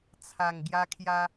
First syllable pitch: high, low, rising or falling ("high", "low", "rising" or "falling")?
low